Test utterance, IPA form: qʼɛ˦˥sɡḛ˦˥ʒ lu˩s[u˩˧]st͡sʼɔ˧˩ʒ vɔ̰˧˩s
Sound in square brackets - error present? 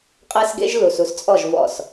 no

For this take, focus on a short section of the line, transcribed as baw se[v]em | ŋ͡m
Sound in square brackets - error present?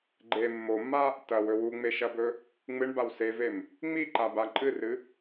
no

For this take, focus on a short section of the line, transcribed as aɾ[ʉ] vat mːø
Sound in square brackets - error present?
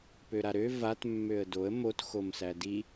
yes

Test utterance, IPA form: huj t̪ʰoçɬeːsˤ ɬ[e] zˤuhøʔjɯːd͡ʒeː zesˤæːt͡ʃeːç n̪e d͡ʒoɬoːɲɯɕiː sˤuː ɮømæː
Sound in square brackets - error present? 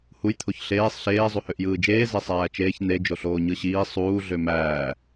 yes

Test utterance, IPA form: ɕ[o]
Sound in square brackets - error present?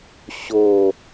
no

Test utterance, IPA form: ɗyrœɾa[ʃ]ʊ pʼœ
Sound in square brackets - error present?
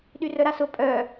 yes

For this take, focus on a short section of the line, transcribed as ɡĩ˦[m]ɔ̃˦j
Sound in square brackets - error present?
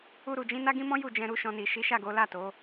no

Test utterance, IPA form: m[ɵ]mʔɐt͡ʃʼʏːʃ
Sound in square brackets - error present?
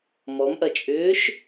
yes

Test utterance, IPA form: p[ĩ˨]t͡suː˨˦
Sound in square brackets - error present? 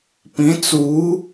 yes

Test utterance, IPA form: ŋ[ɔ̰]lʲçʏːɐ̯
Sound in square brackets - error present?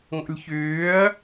no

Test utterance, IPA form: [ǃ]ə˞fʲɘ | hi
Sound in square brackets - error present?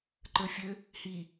no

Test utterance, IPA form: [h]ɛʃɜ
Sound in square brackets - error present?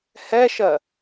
no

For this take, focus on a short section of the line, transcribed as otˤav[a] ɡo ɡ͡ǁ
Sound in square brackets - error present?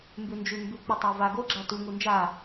no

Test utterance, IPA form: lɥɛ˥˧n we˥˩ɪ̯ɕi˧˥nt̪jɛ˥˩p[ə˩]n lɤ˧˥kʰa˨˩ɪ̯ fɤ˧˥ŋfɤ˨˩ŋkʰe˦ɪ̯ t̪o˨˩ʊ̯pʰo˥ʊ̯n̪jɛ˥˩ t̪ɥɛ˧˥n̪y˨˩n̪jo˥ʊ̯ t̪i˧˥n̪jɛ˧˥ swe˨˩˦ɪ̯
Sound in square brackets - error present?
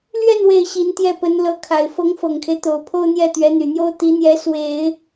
yes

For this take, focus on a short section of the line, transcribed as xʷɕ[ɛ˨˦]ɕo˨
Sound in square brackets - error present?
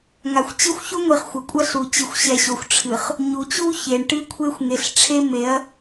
yes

